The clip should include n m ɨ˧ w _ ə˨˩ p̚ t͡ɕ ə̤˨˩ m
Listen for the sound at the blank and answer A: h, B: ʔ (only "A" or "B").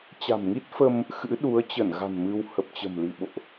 A